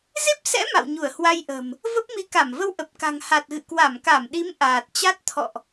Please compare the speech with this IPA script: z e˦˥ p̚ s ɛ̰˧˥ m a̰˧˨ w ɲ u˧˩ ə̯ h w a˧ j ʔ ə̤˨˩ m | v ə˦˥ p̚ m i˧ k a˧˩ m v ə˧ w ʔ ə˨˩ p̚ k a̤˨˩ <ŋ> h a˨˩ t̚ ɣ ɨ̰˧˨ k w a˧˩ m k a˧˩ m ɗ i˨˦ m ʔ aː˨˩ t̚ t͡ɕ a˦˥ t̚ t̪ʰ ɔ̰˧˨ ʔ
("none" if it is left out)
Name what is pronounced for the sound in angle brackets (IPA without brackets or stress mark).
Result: ŋ